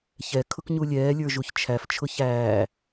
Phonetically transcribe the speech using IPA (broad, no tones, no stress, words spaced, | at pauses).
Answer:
çɛ kʰʊkɲulʲɛː lʲə˞ʒuçt͡ʃʰæf t͡ʃʰʊçæː